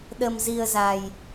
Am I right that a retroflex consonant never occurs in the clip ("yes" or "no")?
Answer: yes